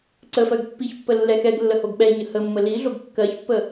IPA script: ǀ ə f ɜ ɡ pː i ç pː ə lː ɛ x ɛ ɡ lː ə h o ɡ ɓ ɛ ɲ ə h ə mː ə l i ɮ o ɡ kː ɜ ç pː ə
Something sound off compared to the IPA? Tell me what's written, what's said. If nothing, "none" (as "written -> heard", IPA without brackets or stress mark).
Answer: none